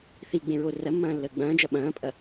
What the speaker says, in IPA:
θ i ɡ͡b ẽ ɹ o r ɐ mː ɐ̃ː lː əː ɡ͡b ɐ̃ː d͡ʒ ɐ ɓ ɐ̃ː pʼ ɐ

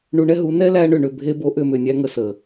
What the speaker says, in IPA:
ɳ u˧ ɳ ɛ˦ ɦ u˨˦ n ɛ˦ l æ˧ ɳ ʏ˨ ɳ ʏ˨ bʱ e˧ b o˨˦ ʔ ʏ˨ m ʏ˨ nʲ æ˧ ŋ ə˨ s ə˨

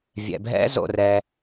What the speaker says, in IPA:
vʲ ɛ̰˩ bʱ ɛ̰˦˥ z o̰˩ r ɛ˩

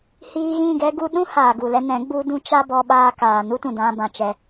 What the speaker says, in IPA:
h iː˧ ɣ ĩ˦˨ ɡ ɛ˧ ɡ u˧ ɗ ũ˦ h aː˨ ɡ u˨ l ɛ˧ n ɛ̃˨˦ ɡ͡b u˧ d ũ˦ t͡ʃ a˦ b ɔ˧ ɓ aː˧ k aː˨ n u˦ t ũ˨ d ã˧ b ã˨ t͡ʃ ɛ˧

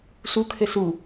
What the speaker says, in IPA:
s u kʰ ɘ s u

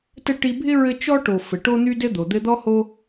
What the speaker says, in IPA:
t ə˦ ʈ i˦ bʱ ɪ˥ ɹ ɘ˦ t͡ʃ ɔ˦ ʈ o˨ f ɘ˩ ʈ o˦ n̪ y˦ d ɘ˦ d̪ o˩ d̪ ɘ˦ d̪ ɔ˥ h o˦

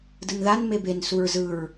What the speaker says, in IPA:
d ɯ n ð a n m e b e n s u ɹ z ɯ ɹ

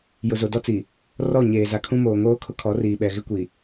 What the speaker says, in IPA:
j ʊ˨ z o˨ d ɔ˦ t͡s i˨ | r ɔ˦˨ ɲ eː˨ z a˨ kʰ ũ˦ m oː˨ ŋ oː˦ kʰ ʊ˦ kʰ ɔ˨˦ r iː˨ ɓ ɛ˨ ɣ ɪ˦ kʷ i˨

